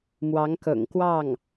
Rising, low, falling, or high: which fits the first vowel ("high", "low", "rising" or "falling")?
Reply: rising